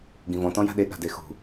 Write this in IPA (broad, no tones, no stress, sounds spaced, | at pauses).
ɡ ĩ v ɔ̃ t ɔ̃ j a̤ ɗ e ɠ a̤ d e x ṳ